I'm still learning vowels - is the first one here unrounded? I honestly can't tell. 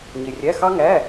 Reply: yes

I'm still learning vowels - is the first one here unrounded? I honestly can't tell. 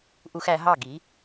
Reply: no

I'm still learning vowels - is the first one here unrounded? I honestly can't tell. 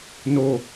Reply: no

